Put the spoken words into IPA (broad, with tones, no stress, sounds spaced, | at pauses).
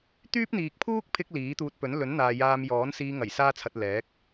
t̪ yː˥ p̚ n̪ iː˨ k̚ pʰ uː˥ k̚ pʰ ɪ˧ k̚ l iː˨˥ t̪ uː˧ t̚ p ɵ˨˥ n l ɵ˨˥ n n̪ aː˨ j aː˧ m j ɔː˨˥ n s iː˧ ŋ ɐ˨˩ j s aː˥ t͡sʰ ɐ˧ t̚ l ɛː˨˥ k̚